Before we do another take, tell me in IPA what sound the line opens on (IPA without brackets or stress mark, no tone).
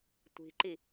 tʷ